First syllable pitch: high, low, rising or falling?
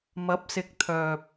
rising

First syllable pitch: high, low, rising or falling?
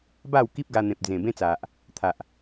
falling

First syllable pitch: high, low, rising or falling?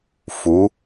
rising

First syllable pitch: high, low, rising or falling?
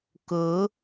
rising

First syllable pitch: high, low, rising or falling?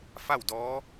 falling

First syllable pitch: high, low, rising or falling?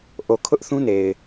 low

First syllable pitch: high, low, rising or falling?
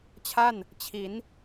falling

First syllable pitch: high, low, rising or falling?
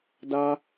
high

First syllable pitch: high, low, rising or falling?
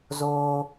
high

